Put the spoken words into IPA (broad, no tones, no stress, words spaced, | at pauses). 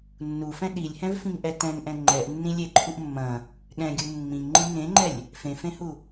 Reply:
nːufɛ̃ ɗilʲhɛ̃vfĩŋʔɛ tɛ̃ŋʔɛ̃ ŋ͡ǃɛʔnːĩ lʲeǃʰuʔ mːɐ̃ | ɠɛ̃ɡʲu mːĩŋŋ͡ǃĩ ŋẽŋ͡ǃɛlʲ | fẽfẽhu